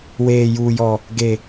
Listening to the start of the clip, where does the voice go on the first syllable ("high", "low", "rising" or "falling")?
low